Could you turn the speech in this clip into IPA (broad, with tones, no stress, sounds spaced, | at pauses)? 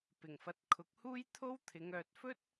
p ɪ˨˩ ŋ f ɐ˨˥ t̚ kʰ ʊ˨ k̚ h uː˥ j t̪ʰ o˥ w t̪ʰ ɪ˨˧ ŋ œː˨ t̚ f ɵ˥ t̚